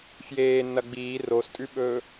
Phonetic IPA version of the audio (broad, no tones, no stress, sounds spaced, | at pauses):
f j eː nː ɐ ɡ͡b iː r o s tʼ ʉ ɓ ɵː